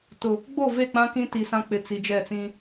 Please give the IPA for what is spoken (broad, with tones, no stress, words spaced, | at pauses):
tʊ˨ | ɡ͡bo˦˨ve˦˨k͡pã˦ kĩ˦ti˨sã˦ k͡pɪ˨t͡si˨d͡ʒɛ˦˨t͡sĩ˦